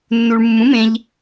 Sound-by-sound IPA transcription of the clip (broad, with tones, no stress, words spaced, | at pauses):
nːu˧ɭ mːũ˨˥mẽ˧ʎ